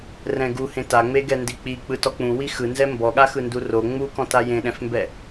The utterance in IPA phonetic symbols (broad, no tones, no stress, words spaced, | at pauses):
rɛ̃ɡuhẽ taŋ͡me ɡɛndik͡pi k͡pɯtɔk͡pũwi xɯnzɛ mbɔɠa xɯnduro ŋ͡mukɔ̃ tajẽɗɛ̃fmbɛ